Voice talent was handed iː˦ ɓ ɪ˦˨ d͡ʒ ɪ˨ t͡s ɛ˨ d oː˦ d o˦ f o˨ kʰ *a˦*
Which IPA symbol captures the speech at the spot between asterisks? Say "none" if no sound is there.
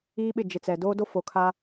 a˦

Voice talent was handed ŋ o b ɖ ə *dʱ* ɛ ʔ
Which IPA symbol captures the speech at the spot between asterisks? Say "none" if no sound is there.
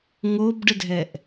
dʱ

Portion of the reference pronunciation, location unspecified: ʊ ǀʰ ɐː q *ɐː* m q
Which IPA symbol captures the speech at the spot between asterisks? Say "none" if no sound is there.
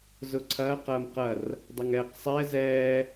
ɐː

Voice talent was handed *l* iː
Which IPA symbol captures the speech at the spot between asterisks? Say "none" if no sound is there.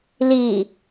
l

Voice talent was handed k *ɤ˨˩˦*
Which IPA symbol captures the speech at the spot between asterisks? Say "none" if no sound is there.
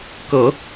ɤ˨˩˦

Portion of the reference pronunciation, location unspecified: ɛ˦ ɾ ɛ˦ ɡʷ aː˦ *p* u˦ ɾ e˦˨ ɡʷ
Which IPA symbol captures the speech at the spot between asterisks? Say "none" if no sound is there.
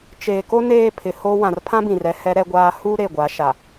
h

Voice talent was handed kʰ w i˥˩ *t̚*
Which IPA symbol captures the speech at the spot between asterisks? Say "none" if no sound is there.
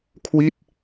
t̚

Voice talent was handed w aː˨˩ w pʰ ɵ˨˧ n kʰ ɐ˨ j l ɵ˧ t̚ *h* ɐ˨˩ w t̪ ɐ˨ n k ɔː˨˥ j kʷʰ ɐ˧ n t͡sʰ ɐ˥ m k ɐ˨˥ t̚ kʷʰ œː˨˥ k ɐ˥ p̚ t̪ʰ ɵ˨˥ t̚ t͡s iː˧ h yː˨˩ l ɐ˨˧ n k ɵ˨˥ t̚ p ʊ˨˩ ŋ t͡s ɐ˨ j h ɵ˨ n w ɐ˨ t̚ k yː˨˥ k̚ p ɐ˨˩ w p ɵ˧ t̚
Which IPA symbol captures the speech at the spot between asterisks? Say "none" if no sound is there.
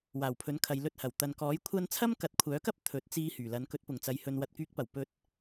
h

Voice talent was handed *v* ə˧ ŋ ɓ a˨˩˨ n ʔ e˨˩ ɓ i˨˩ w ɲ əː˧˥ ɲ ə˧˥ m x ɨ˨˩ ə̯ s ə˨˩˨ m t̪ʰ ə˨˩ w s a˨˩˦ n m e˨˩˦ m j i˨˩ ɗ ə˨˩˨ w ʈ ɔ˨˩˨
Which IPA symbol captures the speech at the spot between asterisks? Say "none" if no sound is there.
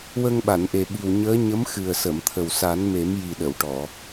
w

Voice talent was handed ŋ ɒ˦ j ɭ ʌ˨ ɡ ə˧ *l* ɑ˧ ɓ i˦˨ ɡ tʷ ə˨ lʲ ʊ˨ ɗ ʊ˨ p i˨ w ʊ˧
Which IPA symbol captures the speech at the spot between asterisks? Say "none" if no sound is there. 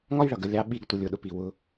lʲ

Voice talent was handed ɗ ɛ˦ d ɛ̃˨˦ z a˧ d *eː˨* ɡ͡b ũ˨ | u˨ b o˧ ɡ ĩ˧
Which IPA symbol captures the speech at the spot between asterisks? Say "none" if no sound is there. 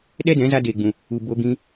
eː˨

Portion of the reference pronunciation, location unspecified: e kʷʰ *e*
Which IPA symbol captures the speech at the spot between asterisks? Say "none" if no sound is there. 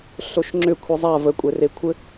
ɘ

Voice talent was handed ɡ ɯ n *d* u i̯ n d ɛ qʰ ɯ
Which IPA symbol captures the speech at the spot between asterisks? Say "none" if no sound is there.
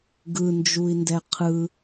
d͡ʒ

